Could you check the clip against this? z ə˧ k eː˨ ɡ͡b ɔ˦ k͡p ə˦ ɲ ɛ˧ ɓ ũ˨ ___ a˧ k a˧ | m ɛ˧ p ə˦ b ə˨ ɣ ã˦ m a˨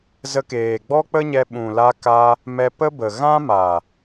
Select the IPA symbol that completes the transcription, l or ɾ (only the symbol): l